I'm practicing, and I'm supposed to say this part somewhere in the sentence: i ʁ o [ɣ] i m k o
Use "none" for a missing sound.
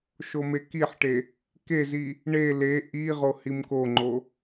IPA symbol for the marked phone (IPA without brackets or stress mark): h